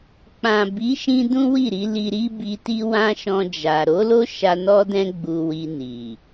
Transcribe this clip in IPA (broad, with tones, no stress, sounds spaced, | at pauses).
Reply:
k͡p ã˨ b i˨˦ ʃ ĩ˧ d ũ˦ w i˦˨ ɾ i˧ l i˧ ɾ i˦ b i˧ t i˦ w ã˦ ʃ ɔ̃˧ d͡ʒ a˨ ɾ o˨˦ l o˦ ʃ a˧ n ɔ˦ d ɛ̃˦ ɡ͡b u˧ w i˧ n i˨